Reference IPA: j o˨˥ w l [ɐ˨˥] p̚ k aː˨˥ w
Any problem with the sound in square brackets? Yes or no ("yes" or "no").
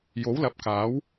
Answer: no